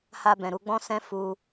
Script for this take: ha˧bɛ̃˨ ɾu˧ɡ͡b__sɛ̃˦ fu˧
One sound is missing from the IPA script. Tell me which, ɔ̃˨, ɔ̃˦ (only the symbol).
ɔ̃˦